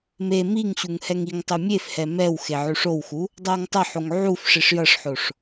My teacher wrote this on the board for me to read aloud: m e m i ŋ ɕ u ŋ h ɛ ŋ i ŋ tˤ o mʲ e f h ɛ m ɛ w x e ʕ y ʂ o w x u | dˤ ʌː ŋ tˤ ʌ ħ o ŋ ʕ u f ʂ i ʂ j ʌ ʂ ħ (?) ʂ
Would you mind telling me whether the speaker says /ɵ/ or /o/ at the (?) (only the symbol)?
o